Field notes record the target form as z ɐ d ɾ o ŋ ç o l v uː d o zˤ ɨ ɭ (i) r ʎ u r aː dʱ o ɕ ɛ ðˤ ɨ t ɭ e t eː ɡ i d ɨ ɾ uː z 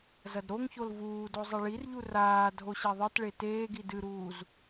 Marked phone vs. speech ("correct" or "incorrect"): correct